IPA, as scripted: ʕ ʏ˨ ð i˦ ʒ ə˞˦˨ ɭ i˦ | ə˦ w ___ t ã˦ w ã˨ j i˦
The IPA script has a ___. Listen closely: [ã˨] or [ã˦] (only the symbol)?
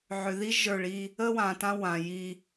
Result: ã˨